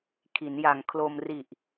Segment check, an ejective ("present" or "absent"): absent